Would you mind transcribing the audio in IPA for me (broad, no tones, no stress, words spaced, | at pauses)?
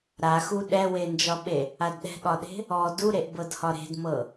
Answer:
ɾaxu ɗɛwend͡ʒɒɓe | adɗɛ̤ɠɒɗe̤ | ɔ duɾeʔ bɤdhɒɾe̤dmɤ